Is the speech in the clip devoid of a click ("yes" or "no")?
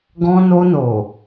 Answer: yes